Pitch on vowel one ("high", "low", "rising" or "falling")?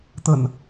low